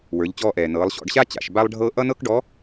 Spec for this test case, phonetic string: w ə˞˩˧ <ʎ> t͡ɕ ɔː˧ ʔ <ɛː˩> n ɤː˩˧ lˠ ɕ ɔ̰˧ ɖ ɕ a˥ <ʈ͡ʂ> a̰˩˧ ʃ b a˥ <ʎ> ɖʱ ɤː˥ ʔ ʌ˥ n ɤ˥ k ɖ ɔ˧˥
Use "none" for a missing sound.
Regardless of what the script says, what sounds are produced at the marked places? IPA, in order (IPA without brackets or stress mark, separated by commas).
ʎ, ɛː˩, t͡ɕ, lˠ